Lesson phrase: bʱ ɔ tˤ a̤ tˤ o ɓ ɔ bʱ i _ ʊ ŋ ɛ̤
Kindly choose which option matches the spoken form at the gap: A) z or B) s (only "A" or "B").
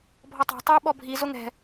A